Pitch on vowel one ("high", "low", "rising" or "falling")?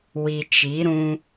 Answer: low